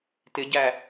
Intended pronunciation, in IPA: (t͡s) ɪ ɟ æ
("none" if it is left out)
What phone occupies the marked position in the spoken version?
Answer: t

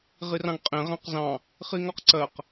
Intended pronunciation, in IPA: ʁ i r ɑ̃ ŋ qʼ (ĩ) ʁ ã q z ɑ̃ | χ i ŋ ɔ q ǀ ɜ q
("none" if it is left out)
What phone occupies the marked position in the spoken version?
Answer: ẽ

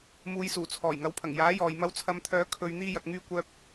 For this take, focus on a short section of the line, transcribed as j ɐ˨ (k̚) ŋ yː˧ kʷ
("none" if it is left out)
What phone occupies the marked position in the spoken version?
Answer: k̚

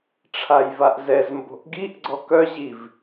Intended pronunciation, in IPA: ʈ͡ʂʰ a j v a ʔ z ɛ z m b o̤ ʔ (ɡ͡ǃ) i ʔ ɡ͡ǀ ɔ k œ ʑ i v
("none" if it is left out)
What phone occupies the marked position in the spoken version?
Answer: ɡ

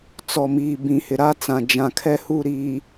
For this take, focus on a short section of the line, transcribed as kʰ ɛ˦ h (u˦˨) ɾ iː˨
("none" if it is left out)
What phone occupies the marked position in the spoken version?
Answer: u˦˨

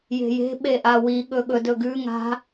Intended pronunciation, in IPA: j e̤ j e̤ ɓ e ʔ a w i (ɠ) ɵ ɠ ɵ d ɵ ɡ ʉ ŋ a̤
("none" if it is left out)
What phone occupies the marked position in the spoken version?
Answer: ɠ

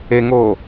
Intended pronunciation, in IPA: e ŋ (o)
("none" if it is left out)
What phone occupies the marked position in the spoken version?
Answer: o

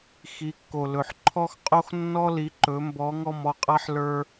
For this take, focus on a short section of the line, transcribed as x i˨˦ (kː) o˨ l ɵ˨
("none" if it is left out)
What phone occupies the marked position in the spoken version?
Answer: kː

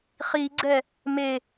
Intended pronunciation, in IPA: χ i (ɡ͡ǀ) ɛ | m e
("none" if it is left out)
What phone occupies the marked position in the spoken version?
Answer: ɡ͡ǀ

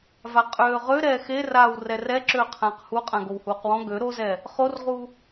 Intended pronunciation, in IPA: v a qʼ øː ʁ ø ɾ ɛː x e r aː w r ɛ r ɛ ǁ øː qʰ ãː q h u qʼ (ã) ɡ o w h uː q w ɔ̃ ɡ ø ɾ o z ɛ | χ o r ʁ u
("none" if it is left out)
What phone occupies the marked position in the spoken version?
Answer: ã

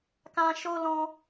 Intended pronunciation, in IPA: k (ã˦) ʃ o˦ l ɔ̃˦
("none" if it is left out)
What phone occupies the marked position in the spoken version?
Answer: ã˦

